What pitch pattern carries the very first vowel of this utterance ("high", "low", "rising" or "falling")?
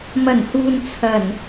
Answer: low